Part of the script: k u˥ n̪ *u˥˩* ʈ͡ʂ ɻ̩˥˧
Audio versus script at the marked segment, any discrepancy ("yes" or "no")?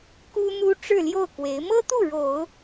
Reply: yes